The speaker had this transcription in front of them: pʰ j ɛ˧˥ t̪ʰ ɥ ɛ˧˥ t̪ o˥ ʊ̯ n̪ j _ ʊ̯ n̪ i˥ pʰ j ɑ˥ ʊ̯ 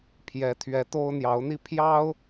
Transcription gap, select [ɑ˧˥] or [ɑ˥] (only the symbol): ɑ˧˥